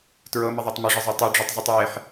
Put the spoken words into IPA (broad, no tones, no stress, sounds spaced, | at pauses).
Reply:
t ɹ ɤ m ə ðˤ e tˤ m ə ʐ ə zˤ o tˤ ʉ ɖ͡ʐ ʉ tˤ zˤ ɤ tˤ w e ħ